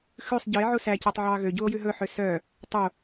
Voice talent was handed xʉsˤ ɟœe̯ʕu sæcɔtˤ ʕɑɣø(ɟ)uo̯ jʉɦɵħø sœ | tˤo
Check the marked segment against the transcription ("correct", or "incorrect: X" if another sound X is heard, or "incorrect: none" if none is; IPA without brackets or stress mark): correct